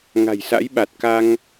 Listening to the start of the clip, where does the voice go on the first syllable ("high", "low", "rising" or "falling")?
low